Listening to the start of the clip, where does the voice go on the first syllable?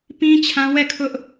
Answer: high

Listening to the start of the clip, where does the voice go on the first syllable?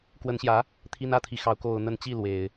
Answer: rising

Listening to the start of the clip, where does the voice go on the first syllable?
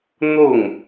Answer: falling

